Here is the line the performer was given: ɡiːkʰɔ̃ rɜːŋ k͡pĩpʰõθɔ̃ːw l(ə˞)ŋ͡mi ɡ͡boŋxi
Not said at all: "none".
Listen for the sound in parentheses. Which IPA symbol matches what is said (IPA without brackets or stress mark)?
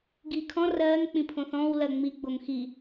ɜ